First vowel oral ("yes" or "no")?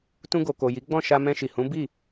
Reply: no